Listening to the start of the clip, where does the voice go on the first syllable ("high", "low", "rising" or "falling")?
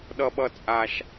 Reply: low